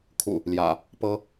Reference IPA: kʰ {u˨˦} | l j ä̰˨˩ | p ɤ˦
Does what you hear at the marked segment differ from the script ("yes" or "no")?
yes